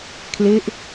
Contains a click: no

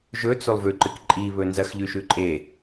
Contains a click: yes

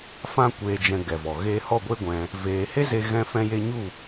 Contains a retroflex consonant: no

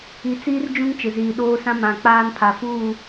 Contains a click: no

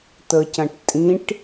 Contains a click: no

